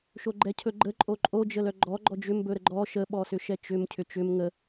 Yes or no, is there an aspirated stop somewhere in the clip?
yes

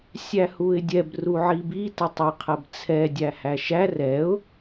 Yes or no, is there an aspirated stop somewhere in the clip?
yes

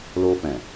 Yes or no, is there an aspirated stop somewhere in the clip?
no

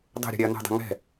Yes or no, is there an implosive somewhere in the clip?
no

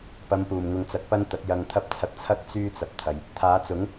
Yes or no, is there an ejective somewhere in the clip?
no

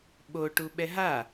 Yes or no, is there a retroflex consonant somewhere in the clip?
yes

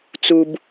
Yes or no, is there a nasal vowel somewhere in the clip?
no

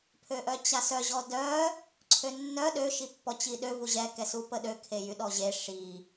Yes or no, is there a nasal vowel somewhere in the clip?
no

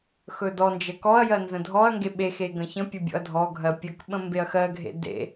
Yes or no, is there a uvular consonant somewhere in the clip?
no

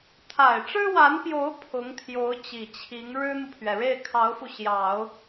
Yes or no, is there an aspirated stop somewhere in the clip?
yes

